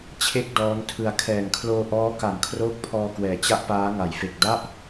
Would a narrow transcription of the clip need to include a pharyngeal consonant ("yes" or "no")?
no